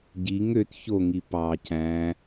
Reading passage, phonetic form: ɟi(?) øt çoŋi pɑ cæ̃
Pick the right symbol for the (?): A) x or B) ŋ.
B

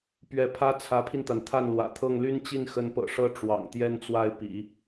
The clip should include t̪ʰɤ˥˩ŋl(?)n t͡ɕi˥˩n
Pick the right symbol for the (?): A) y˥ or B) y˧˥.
A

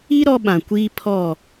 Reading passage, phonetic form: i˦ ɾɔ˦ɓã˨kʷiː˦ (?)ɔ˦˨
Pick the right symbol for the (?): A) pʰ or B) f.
A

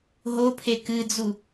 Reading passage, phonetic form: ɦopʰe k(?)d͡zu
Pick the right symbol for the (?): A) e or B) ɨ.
B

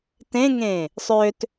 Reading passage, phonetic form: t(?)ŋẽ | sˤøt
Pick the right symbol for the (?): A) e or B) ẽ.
B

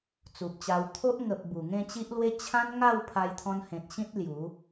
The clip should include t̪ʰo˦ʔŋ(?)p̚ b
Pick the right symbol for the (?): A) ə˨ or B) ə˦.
A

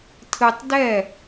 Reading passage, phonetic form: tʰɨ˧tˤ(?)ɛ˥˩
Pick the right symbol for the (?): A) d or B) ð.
A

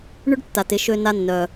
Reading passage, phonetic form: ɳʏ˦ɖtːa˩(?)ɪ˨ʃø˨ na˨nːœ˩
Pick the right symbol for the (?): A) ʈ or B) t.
B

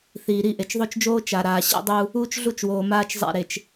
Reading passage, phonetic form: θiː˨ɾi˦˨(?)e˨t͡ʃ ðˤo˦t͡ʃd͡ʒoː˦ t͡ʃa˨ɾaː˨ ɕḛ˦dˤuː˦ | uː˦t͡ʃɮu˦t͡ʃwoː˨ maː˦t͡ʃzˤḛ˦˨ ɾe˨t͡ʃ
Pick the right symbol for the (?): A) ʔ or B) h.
A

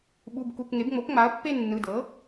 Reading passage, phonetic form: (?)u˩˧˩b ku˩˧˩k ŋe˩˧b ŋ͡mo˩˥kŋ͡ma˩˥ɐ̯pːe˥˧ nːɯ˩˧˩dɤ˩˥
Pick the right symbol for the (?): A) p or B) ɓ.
B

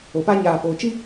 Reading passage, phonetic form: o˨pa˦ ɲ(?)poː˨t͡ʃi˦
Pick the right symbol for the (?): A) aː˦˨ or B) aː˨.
B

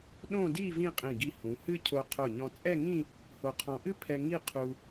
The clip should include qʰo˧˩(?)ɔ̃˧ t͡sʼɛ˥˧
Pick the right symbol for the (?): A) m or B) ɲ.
B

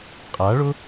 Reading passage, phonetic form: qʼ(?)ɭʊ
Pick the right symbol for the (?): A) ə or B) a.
B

